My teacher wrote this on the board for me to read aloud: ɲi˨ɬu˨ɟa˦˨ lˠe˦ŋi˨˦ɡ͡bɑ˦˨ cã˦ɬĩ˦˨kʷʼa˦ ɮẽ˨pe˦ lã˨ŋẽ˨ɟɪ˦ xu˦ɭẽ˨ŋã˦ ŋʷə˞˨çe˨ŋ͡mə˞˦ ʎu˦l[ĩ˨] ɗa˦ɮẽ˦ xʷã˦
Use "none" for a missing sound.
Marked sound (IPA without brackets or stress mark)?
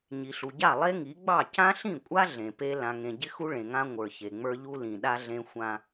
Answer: ĩ˨